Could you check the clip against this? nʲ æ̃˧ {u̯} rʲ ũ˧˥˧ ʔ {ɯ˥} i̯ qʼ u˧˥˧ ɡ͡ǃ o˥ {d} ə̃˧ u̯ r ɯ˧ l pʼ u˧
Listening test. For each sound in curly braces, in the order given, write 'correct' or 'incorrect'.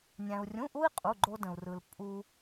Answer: correct, incorrect, correct

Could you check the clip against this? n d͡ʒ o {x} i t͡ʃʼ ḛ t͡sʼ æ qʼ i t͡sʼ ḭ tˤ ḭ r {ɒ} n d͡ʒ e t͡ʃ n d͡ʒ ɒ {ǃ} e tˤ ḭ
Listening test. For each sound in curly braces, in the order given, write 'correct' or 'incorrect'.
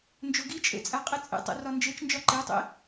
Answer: incorrect, correct, correct

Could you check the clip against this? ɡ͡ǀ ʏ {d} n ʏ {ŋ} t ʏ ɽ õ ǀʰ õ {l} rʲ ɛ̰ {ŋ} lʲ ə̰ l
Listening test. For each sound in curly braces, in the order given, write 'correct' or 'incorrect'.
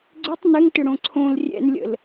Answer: incorrect, correct, correct, incorrect

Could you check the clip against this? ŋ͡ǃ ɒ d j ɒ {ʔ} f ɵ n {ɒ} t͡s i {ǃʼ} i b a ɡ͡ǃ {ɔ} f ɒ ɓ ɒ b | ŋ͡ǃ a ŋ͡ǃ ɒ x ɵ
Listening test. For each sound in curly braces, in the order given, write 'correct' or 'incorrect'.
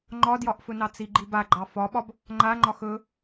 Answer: correct, incorrect, incorrect, incorrect

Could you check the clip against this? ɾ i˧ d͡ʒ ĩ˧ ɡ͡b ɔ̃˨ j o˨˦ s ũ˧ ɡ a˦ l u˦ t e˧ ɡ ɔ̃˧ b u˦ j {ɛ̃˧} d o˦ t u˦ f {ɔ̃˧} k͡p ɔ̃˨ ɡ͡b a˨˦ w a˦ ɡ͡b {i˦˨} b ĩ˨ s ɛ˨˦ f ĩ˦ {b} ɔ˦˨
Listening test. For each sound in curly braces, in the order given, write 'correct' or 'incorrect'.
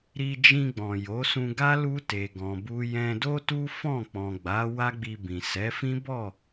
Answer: correct, incorrect, incorrect, correct

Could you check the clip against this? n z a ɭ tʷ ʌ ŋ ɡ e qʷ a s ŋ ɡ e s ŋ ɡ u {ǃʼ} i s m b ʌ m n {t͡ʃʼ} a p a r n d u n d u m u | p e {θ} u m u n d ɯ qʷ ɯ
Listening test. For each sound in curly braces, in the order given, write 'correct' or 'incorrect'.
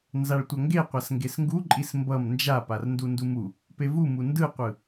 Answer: correct, incorrect, incorrect

